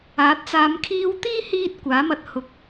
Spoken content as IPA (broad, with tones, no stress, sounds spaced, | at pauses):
aː˨˥ t̚ t͡s aː˨˧ m kʰ iː˧ w t̪ iː˥ h iː˧ t̚ kʷ aː˨˥ m ɐ˧ t̚ h ʊ˨˥ k̚